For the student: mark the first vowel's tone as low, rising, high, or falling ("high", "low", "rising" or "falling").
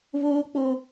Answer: high